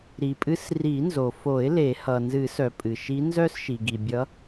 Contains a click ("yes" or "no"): no